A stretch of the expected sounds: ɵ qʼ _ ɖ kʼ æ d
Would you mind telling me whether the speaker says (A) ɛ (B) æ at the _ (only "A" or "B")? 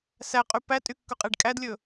A